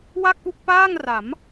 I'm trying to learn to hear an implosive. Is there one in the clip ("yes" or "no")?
no